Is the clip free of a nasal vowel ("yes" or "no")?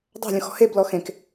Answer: no